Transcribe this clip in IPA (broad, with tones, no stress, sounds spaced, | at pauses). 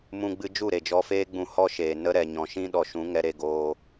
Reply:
m ũ˧ ɡ͡b ɨ˧ d͡ʒ u˦˨ ɾ e˨ d͡ʒ ɔ˧ f eː˦ ɡ͡b ũ˧ h ɔ˦ ʃ eː˨ n ə˦ ɾ ɛ˨ ɲ ɔ̃˨ ʃ ĩ˦ ɗ ɔ˨ ʃ ũ˨˦ ŋ ɛ˧ ɾ e˧ ɡ oː˧